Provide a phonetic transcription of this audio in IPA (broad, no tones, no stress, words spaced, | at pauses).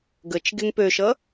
ɡət͡ʃɡeŋ pøʃʌ